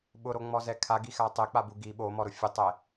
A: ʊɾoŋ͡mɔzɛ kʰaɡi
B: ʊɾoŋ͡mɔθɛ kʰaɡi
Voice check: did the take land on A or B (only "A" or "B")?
A